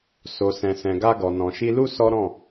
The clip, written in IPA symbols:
s o˨ s ɛ̃˨ s ɛ̃˨ ɡ a˧ ɡ ɔ˨ n ɔ̃˨ ʃ i˧ l u˦ s ɔ˦ ɾ ɔ̃˦˨

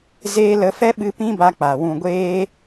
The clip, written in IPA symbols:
z eː˧ l ə˨˦ f ɛ˦ ɓ ɨ˧ p ĩ˦ b a˧ k͡p a˨ w ũ˨ ɡʷ eː˧

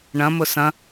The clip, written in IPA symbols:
ɳ ɐ̃ m ʊ s ɐ̃

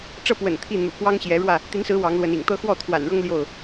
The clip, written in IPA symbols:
ʈ͡ʂ ɤ˥˨ p w ə̰˨˩ n t̪ʰ i˥˨ n̪ ṵ˨˩ k w ɑ˦ ŋ ɕ j ɛ˨˦ ɻ w ä˥˨ | t̪ i˨˦ n s ɹ̩˨˦ w ɑ˨˦ ŋ l w ə˨˦ n ḭ˨˩ ŋ t̪ ɤ˦ x w ɔ˥˨ t̪ʰ w a̰˨˩ n ɻ ɤ˦ ŋ l j o˥˨ ʊ̯

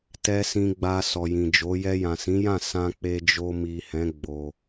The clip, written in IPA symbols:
t ɛ˨ s ĩ˨ ɡ͡b a˨ s ɔ˨ j ĩ˨ d͡ʒ o˨˦ j ɛ˧ j ã˨ s ĩ˨˦ j ã˦˨ s ã˧ k͡p e˧ d͡ʒ o˧ m i˨ h ɛ̃˨˦ ɡ͡b o˧

